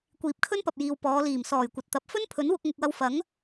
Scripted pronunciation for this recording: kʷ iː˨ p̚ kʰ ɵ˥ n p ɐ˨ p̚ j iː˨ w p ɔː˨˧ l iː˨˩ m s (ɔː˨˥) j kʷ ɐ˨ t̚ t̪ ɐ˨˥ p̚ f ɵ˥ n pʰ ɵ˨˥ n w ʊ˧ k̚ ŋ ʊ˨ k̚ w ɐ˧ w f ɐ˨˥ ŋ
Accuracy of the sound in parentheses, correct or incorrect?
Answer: incorrect